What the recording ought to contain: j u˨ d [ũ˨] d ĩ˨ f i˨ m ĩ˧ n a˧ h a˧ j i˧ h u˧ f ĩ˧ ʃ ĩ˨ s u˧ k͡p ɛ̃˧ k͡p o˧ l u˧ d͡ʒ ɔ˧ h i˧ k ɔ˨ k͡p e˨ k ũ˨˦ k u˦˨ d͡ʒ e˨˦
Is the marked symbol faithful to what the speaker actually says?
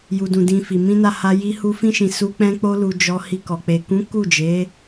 yes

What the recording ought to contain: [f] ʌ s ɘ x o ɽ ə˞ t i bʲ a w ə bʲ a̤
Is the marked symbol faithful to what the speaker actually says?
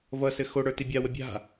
no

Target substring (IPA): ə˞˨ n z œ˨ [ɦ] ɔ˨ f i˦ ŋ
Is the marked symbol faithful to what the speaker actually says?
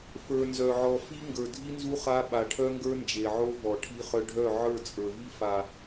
no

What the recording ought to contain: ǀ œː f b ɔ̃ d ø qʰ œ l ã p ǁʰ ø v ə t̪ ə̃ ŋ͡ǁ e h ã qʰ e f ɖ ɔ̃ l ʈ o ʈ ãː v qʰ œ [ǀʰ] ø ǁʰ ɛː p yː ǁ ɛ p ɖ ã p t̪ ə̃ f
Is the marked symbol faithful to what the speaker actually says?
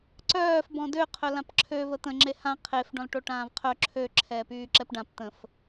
no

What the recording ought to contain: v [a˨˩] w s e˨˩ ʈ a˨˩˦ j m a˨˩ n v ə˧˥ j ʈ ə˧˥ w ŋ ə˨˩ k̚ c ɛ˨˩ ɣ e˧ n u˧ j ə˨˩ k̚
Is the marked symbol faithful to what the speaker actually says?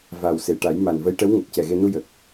yes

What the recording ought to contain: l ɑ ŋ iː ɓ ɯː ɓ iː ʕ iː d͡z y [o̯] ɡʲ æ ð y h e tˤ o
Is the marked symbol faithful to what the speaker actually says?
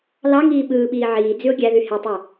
yes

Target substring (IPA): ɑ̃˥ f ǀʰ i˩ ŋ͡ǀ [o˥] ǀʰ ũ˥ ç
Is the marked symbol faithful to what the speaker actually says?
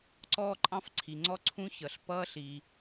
no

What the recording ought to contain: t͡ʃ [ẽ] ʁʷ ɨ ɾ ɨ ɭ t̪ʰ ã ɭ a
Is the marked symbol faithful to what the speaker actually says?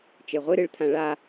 no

